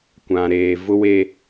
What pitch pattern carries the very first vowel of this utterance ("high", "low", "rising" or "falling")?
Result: low